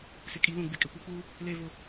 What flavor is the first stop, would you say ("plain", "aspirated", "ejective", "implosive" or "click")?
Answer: ejective